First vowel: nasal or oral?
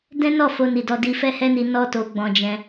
nasal